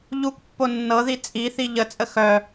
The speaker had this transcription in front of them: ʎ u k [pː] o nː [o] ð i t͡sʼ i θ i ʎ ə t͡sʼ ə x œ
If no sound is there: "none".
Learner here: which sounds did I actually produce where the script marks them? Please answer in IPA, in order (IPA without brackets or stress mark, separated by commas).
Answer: pː, ɤ